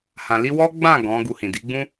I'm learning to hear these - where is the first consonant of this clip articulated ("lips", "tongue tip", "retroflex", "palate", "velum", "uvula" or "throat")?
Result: throat